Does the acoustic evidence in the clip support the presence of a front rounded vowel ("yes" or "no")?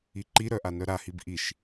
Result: yes